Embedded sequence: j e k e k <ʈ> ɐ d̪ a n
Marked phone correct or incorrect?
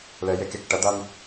correct